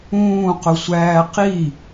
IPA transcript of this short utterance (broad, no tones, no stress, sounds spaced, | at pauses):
ũː q ʊ sʷ æː q i